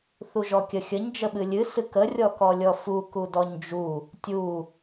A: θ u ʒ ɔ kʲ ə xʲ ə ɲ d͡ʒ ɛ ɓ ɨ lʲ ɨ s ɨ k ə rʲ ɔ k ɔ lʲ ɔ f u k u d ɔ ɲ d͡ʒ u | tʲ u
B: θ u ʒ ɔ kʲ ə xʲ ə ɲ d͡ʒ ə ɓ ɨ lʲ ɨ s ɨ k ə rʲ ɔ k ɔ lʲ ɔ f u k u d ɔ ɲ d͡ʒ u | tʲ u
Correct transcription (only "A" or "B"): B